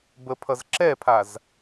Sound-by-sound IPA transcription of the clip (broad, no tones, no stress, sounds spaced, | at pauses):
b ə pʰ ʌ z ǁ ɛ pʰ a z